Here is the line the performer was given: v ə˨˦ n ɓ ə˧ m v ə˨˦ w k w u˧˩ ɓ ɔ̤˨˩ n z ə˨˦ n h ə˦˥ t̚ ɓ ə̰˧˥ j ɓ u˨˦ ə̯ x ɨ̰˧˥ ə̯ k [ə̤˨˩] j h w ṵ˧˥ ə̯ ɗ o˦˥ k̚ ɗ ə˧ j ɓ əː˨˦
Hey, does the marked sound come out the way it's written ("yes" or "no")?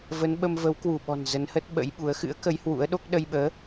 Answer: no